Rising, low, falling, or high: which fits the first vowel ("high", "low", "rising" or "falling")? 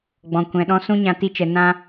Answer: low